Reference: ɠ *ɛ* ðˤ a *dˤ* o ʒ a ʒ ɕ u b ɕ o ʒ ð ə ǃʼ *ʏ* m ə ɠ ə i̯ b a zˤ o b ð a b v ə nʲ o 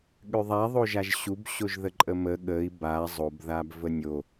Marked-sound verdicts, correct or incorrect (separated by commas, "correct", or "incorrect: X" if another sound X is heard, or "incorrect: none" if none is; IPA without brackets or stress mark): incorrect: ʏ, incorrect: ðˤ, incorrect: ə